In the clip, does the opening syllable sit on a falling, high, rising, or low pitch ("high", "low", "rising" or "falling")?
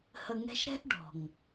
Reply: low